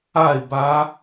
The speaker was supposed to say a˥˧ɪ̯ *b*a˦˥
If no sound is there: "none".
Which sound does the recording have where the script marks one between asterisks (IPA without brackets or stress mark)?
b